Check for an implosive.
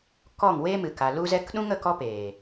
present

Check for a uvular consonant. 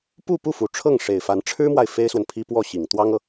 absent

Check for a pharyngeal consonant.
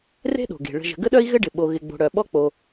absent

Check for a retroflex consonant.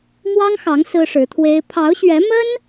present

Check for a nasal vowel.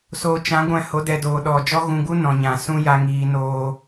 present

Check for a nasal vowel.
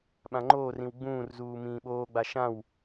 present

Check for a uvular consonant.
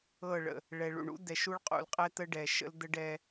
present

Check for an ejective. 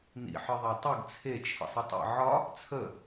absent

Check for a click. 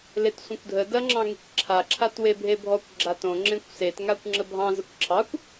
present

